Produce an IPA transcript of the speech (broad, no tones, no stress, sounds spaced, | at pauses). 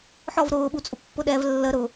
ħ ɔ v ɾ ʊː ɓ u t͡sʼ ʊ pː ʊ ɗ ɛ v lː ə ɾ ʊ